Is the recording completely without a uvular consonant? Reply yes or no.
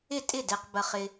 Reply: no